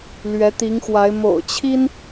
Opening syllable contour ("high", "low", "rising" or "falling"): rising